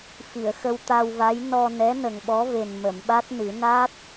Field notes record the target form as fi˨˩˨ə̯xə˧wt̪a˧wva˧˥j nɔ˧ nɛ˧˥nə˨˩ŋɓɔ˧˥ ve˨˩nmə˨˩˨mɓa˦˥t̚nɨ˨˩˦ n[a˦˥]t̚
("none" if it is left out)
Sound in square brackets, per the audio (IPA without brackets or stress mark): a˦˥